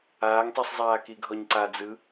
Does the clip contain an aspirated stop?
no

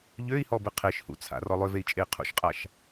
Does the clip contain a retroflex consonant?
no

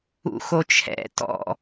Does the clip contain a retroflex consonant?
no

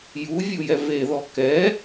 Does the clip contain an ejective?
no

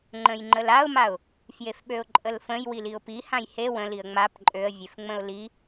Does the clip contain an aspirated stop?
no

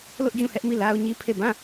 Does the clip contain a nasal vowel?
yes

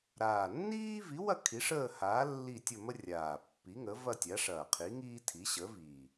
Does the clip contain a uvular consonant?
yes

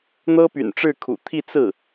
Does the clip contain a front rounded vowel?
yes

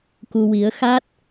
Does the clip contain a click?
no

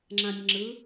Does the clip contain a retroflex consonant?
no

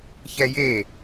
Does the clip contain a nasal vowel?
no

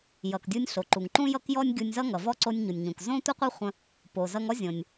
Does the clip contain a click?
yes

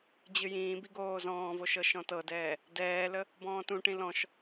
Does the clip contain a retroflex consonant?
yes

